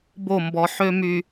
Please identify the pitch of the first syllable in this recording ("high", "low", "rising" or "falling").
falling